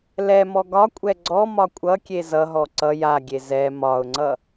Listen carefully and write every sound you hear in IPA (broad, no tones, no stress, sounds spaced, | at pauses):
l ɛ m ɔ ɡ ɒ kʷʼ ɛ ɡ͡ǀ ɔ m ɒ kʷʼ ʌ kʲ e z ʌ ɦ ɔ ǀ ʌ j a ɡʲ e z ɛ m ɒ ʊ̯ ŋ͡ǀ ʌ